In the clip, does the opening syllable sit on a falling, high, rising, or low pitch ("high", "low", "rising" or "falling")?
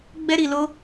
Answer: high